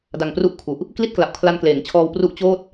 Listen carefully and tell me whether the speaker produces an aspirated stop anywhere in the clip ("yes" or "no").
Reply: yes